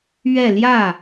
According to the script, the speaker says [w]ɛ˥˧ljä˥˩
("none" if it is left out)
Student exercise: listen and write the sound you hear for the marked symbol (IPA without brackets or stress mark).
ɥ